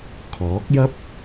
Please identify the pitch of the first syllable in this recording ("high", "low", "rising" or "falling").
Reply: rising